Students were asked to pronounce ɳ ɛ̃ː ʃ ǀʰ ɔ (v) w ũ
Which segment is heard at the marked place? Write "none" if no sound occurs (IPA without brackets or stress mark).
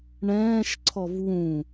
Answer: v